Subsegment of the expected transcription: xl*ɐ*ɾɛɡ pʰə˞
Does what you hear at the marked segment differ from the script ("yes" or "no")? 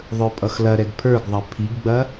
no